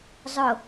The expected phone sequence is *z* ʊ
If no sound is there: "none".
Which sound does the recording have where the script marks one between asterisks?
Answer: zˤ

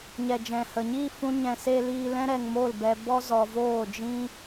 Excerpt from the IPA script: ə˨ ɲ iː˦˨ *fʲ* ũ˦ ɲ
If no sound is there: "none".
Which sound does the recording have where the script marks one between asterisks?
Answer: f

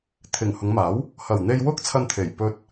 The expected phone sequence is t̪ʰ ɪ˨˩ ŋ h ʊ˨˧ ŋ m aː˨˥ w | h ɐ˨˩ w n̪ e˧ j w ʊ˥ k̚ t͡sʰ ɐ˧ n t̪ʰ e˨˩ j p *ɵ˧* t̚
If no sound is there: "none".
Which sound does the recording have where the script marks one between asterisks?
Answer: ɵ˧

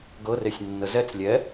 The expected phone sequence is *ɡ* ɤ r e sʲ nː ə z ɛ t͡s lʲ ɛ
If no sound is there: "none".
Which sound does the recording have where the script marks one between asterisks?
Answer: ɡ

